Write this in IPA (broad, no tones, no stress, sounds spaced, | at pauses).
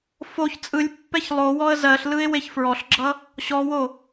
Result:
f o ç t͡sʼ ɯ lʲ pː ɛ ç lˠ o w ɔ ə̯ z ɜ ɬ l ɯ ɪ̯ w e ç f ɹ ɔ ɬ ɡ͡ǁ ʌ | ɕ ɔ w o